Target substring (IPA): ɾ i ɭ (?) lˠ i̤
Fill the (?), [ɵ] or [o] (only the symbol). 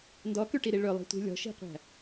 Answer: ɵ